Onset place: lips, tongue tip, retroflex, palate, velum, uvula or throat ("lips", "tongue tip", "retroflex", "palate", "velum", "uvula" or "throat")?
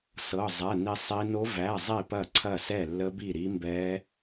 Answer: tongue tip